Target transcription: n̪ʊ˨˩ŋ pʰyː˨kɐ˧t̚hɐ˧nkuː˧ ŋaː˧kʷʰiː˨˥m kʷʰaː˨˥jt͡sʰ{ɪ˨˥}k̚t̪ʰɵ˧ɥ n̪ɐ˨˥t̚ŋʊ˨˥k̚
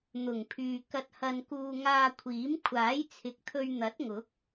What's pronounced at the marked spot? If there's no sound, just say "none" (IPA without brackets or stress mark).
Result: ɪ˨˥